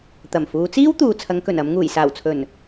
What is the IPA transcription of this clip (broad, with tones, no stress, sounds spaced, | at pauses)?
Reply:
t̪ ɐ˨˩ m f uː˨˧ t͡s iː˥ w t̪ uː˨ t͡sʰ ɐ˨˧ ŋ k ɵ˨˩ n ɐ˨˧ m ŋ uː˨˩ j s aː˨˩ w t͡sʰ ɵ˨˩ n